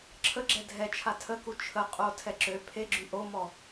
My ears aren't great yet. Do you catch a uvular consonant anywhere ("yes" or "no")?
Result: yes